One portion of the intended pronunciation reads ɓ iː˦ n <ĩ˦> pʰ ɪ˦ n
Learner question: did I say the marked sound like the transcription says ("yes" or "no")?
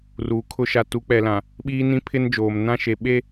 yes